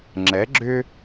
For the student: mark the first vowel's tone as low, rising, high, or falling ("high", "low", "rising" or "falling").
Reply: rising